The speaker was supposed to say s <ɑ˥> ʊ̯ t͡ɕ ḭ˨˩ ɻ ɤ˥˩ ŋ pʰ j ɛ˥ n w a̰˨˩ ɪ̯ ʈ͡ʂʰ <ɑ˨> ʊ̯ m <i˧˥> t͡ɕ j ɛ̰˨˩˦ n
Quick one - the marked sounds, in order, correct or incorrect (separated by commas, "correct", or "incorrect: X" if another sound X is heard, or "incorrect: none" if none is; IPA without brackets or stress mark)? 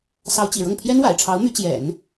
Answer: incorrect: ɑ˧˥, incorrect: ɑ˧˥, incorrect: y˧˥